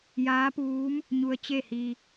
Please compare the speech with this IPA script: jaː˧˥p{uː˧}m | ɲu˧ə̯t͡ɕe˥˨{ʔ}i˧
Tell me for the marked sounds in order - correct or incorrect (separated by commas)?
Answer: incorrect, incorrect